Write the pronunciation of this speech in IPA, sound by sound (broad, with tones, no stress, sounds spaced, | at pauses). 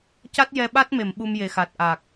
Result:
c a˦˥ t̚ j ɛ˧ ɓ a˦˥ t̚ m e˨˩˨ m ɓ u˧ m j e˨˩˨ x a˨˩ t̚ ʔ a˨˩ k̚